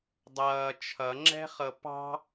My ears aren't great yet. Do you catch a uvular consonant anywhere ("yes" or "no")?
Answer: yes